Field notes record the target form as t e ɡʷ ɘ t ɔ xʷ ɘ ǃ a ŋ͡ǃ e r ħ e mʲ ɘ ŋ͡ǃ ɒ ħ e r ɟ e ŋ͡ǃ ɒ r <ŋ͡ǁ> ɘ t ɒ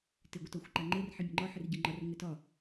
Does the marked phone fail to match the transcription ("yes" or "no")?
yes